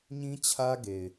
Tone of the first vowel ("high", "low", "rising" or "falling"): high